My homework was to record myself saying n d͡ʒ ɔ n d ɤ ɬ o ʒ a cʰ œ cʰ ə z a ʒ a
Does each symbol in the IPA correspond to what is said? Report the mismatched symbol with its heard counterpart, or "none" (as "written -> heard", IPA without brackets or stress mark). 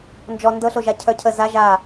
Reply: none